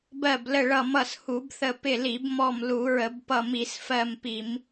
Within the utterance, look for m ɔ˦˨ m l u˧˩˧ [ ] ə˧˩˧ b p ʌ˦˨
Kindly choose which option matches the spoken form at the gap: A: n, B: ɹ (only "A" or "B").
B